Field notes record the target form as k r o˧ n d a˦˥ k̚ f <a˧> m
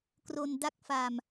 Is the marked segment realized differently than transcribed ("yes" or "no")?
no